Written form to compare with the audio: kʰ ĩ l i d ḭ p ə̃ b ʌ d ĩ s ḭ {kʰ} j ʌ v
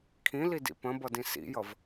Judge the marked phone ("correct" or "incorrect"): incorrect